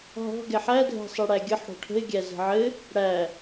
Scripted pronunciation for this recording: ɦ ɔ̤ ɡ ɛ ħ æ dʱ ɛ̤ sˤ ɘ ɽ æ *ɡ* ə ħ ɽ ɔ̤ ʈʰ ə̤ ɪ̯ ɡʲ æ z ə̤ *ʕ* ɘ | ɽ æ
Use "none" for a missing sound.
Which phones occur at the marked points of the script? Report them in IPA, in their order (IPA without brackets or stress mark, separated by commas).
ɡʲ, ʕ